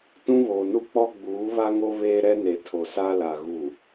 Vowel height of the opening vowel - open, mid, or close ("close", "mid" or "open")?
close